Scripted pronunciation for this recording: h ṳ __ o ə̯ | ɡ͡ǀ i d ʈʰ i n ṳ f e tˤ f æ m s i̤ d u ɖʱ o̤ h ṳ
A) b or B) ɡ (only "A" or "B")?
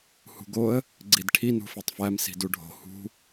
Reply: B